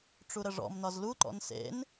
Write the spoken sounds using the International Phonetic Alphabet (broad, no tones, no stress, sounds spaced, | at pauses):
ʈ͡ʂ u ɾ ə ʐ ɔ̰ m n ɒ z l u ǃ ɔ̰ n s ḛ n